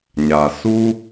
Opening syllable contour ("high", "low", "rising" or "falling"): low